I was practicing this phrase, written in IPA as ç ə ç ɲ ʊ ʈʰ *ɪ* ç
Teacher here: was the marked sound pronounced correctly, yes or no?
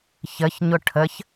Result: no